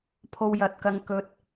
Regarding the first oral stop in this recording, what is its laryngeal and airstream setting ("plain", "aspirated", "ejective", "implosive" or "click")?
aspirated